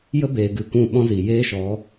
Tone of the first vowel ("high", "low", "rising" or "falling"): high